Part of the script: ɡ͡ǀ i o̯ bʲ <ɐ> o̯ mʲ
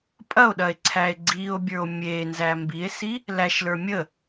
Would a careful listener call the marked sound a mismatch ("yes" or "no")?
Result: yes